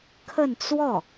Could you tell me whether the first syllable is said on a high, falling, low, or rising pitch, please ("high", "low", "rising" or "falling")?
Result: falling